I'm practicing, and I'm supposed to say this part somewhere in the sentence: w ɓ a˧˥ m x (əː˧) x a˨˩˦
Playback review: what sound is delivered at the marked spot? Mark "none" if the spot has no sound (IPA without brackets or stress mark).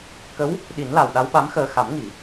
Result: əː˧